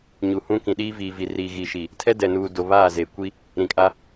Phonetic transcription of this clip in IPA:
ɲ u˨ h ũ˦ k ĩ˨ ɗ iː˦ v iː˨ v i˨ r iː˨ ɣ i˨ ʃ i˨ | tʰ ɛ˦ d ɛ˨ n uː˨ d o˨ β aː˦˨ z eː˨ kʷ i˦ | ɾ ĩ˨ kʼ a˦

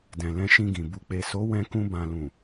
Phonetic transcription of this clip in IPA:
d ɛ̃˨ l ɛ̃˧ ʃ ĩ˧ ɡ ĩ˨ b u˨ k͡p e˨ s o˨˦ w ɛ̃˧ k ũ˧ b ã˨ l ũ˨

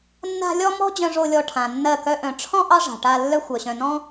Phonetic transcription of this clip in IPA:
nː a̤˧ lʲ ɔ˦ m ɔ̤˦ d͡ʑ œ̃˧ ʐ o˧ lʲ ɔ˧ ʈʰ ã˨ nː ɜ˦˨ k œ˦ ʔ œ̃˨ ʈ͡ʂʰ ɔ̃˦ ʔ ɑ˦ ʐ a̤˨ ʈ a˧ lː œ˦ xʷ œ˨ ɕ œ̃˨ n ɔ̃˦

